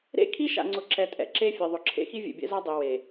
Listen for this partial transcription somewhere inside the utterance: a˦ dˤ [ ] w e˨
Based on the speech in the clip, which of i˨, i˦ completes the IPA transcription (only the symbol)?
i˨